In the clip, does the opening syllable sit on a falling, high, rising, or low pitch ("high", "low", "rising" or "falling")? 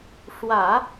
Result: low